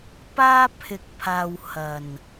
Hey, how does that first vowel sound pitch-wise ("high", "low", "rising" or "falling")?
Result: high